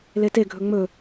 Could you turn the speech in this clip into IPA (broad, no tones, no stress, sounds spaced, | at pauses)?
l e t e ɡʱ ɵ ŋ͡m ɵ